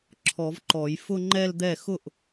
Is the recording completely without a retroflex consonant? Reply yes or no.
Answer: yes